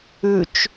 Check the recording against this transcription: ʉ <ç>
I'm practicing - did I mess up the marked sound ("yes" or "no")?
yes